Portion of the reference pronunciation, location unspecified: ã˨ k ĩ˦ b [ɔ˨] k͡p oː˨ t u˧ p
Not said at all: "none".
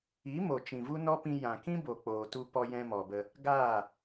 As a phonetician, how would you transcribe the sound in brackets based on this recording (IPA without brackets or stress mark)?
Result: o˨